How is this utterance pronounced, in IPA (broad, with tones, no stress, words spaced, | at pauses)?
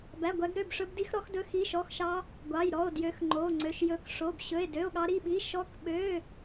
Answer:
bæ˧˥˧ɡʷæ˦˥ɡɾø˧˥˧b ʂɵ˦˥bdi˦˥xɾɔ˦˥xdɵ˦˥ xi˧˥˧ʃɔ˧˥˧xʃɑ˦˥ | ɡʷɑ˧˥˧jɾɔ˧˥˧o̯ djø˦˥x ŋ͡ǃo˧˥˧ŋ͡ǀø˧˥˧ʃjɵ˦˥k ʂo˧˥˧bɕɵ˧˥˧e̯ dø˧˥˧o̯ɠɑ˦˥ɾi˧˥˧ɓi˧˥˧ ʃɔ˦˥kɓø˧˥˧